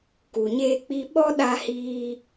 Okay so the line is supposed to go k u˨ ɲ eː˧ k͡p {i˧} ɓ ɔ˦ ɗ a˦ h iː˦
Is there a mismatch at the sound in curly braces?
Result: no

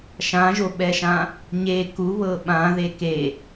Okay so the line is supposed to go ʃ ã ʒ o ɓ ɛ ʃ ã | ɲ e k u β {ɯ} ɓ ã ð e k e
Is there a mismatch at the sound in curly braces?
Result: yes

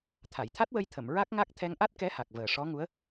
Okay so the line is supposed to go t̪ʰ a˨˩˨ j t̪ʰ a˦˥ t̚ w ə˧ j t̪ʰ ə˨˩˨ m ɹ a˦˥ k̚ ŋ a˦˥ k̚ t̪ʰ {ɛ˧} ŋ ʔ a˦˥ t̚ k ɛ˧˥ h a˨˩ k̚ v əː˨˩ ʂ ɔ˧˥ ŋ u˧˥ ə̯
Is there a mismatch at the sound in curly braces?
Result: no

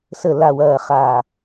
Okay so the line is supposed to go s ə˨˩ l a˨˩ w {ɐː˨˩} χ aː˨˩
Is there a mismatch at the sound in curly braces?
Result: no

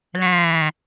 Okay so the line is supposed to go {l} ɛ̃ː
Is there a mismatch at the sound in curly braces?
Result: no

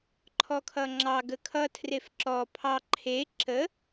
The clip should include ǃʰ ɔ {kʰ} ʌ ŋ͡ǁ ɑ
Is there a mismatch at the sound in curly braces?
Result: no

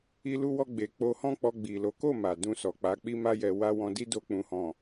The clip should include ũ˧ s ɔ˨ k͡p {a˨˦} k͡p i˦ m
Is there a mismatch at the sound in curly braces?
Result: no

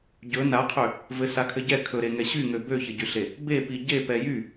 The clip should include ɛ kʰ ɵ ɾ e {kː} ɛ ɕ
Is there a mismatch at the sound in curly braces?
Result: yes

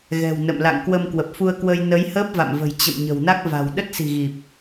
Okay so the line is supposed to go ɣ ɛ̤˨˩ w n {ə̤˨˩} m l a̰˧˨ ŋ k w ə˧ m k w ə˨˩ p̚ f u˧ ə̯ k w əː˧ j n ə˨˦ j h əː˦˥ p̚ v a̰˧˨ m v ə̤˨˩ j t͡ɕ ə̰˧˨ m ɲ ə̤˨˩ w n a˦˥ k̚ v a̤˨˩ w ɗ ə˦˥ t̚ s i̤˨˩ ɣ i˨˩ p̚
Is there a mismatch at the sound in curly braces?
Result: yes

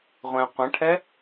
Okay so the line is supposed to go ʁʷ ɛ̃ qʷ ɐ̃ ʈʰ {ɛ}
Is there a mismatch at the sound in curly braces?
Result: no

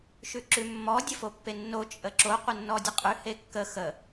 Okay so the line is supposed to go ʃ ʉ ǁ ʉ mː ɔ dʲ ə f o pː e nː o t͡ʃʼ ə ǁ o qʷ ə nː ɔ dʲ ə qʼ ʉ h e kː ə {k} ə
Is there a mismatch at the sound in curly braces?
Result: yes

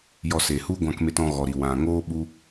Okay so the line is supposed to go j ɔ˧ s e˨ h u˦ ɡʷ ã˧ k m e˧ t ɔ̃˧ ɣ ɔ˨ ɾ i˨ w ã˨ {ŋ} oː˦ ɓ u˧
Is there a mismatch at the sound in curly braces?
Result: no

